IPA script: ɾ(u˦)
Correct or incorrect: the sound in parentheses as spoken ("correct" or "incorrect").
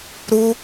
correct